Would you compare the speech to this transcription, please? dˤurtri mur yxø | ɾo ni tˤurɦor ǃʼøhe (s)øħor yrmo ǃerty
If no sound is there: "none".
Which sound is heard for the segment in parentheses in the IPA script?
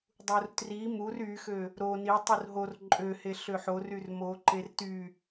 ɬ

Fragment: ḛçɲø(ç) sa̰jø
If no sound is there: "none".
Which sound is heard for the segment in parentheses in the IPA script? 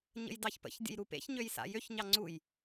j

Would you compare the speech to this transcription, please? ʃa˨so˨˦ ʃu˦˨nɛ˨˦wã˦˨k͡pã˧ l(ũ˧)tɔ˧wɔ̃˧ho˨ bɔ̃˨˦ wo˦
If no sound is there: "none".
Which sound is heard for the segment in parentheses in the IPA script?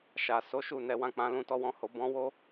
ũ˧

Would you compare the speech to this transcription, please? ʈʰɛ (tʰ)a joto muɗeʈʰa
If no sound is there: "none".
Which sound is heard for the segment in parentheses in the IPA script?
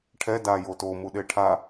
d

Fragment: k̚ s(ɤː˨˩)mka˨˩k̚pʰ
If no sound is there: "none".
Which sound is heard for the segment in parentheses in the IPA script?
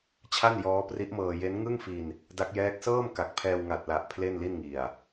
ɤː˥˩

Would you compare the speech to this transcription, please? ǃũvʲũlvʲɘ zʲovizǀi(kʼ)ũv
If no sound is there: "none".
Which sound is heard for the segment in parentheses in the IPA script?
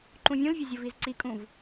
kʼ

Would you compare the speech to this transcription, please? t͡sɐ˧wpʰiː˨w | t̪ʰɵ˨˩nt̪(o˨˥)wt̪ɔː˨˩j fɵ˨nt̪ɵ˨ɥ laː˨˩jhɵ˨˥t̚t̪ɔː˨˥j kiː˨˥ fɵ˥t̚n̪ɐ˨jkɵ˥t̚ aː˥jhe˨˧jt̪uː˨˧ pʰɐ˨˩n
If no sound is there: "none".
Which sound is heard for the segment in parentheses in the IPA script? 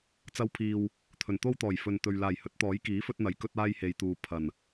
o˥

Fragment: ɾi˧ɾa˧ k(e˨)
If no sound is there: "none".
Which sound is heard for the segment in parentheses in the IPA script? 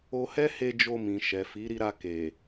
e˨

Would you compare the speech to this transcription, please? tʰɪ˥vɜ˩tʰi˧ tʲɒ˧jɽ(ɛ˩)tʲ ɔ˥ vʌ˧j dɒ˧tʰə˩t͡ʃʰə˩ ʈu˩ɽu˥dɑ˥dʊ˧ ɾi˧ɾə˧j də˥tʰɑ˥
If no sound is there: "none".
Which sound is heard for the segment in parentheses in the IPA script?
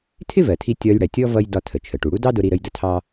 ɛ˩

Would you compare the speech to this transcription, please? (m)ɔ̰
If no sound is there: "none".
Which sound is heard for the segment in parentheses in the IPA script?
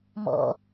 m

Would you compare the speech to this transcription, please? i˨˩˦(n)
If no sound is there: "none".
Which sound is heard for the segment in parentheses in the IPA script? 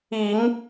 ŋ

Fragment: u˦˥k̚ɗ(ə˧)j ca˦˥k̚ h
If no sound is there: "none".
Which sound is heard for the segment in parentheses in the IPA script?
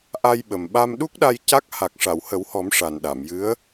a˧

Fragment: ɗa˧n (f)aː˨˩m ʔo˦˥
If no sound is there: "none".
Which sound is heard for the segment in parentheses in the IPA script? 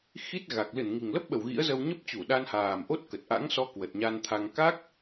h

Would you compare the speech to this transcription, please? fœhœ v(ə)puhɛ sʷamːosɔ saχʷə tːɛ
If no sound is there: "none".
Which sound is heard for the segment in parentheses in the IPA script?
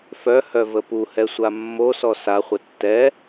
ə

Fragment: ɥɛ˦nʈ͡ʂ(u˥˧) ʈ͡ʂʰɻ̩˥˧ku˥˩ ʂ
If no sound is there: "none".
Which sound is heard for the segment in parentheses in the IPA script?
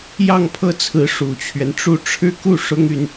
u˥˧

